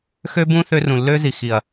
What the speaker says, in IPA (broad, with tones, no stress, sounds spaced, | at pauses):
x ø˦ b ũ˦ θ ø˧ r ũ˨ lː ø˦ z i˨ x i˨ ɐ̯